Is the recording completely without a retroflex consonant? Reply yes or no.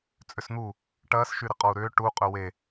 no